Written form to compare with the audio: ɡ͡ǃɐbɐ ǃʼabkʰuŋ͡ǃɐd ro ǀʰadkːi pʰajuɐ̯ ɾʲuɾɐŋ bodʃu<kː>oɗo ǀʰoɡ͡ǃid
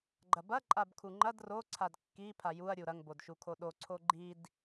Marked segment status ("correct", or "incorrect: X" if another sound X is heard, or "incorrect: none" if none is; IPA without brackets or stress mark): incorrect: kʰ